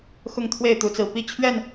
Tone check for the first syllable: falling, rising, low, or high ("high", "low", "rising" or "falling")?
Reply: falling